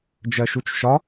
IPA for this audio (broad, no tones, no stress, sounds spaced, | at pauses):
d͡ʒ ɜ ʃ u t͡ʃ ʃ ɒ